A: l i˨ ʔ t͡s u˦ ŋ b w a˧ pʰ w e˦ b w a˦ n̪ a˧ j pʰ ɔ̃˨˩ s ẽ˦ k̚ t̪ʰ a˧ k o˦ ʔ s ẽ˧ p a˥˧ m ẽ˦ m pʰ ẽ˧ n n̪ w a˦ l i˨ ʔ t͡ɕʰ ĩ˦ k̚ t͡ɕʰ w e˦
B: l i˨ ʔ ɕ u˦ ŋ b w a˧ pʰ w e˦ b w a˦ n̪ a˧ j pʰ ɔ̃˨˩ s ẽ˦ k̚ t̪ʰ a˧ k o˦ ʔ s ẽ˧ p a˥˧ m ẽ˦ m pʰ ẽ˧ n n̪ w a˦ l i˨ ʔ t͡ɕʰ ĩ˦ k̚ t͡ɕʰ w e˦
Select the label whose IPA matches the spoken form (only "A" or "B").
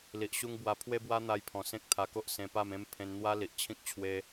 B